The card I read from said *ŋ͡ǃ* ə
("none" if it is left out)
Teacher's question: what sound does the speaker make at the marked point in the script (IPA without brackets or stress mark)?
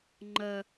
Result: ŋ͡ǃ